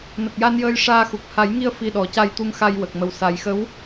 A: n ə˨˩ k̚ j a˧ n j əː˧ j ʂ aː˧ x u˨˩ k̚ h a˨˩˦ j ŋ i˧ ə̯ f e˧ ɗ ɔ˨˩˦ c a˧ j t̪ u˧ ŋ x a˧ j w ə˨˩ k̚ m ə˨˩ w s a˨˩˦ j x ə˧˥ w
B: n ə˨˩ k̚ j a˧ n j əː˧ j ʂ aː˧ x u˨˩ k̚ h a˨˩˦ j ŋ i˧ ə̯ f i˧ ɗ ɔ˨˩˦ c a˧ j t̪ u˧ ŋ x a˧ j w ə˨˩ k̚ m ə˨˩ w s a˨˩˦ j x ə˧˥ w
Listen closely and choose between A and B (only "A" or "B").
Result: B